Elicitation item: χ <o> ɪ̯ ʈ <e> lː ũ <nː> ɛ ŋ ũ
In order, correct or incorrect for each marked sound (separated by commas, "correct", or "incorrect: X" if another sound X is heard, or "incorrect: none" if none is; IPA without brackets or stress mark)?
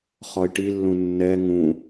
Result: incorrect: ɔ, incorrect: i, correct